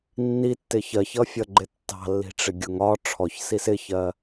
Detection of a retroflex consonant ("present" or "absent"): present